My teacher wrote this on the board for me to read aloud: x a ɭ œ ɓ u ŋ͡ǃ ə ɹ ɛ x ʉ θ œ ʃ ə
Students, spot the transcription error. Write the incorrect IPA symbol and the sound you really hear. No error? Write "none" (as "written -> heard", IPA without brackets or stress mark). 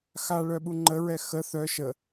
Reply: ʉ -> ə